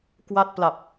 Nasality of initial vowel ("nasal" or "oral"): oral